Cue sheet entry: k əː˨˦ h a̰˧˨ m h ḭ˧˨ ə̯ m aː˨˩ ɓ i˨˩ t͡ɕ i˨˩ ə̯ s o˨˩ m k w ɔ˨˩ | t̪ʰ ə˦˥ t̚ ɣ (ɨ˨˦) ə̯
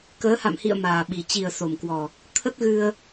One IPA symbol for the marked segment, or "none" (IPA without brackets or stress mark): ɨ˧